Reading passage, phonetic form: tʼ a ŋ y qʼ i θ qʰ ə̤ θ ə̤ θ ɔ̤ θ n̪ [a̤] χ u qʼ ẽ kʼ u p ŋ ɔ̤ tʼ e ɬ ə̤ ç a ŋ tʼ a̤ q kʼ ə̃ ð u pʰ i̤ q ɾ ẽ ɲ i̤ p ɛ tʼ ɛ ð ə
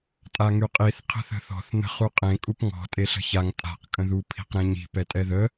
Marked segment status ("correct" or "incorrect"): incorrect